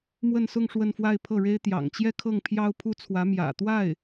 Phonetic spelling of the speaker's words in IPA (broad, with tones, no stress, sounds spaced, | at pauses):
m w ə˥˧ n s ʊ˥˧ ŋ ʂ w ə˥˧ n f w a˥˧ ɪ̯ pʰ ɤ˥˩ ɻ e˥ ɪ̯ t̪ j ɑ̰˨˩ ŋ t͡ɕ j ɛ˥˧ kʰ ɤ˥˩ ŋ pʰ j ɑ˥ ʊ̯ pʰ u˥ t͡sʰ w ä˧˥ m j ä̰˨˩ t̪ w a˥˩ ɪ̯